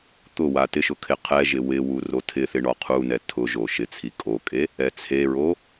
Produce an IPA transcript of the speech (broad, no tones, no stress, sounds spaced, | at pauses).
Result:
t̪ ʊ w a t ɪ ʃ ʊ kʰ ɪ qʰ ɛ ʒ ɪ w ɪ w u r o tʰ ɪ θ ɪ ɳ ɔ qʰ u n ɛ tʰ ʊ ʒ o ʃ ɪ t͡sʰ i kʼ o kʼ e | ɛ t͡sʰ e ɹ o